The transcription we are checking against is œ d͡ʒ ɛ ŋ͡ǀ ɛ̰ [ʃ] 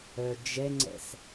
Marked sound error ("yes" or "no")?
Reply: yes